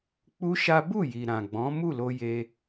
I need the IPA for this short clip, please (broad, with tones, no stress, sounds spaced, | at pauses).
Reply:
k͡p u˦ ʃ a˦ b u˦˨ j i˨ ɾ ã˨ ɡ͡b ɔ̃˨˦ m u˦˨ l o˧ j e˧